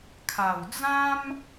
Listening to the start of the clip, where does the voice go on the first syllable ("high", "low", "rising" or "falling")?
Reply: low